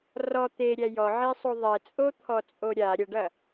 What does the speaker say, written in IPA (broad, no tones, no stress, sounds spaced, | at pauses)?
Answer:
r ɔ t̪ e ɾʲ æ j ɔ ʕ e sˤ o ðˤ ɛ t͡sʼ o t̪ʰ ɔ t͡sʼ o ɾʲ a ɾʲ ɐ ɖ ɐ